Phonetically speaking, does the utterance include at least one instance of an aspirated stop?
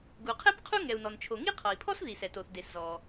yes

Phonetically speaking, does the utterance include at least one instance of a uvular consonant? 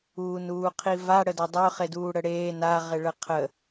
yes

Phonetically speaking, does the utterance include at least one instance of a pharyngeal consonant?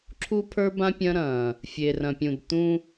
no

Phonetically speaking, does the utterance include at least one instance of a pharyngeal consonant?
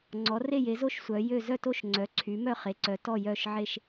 yes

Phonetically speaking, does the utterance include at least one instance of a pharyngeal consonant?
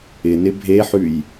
yes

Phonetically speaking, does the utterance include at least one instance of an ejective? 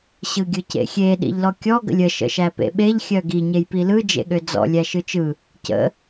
no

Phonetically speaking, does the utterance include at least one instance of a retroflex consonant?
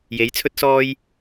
no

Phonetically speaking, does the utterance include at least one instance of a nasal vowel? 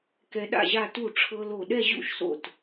no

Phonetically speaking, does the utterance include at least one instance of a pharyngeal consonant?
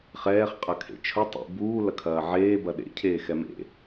yes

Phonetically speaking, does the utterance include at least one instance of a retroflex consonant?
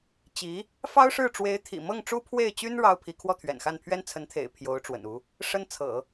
yes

